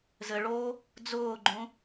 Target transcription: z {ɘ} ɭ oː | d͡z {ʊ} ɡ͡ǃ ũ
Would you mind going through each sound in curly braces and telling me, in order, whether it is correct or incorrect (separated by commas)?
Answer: correct, incorrect